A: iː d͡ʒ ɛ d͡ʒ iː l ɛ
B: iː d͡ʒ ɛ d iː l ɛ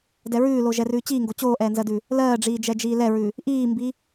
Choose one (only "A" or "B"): A